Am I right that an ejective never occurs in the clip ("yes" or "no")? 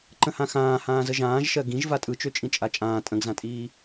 no